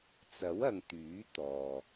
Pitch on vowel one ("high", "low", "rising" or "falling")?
rising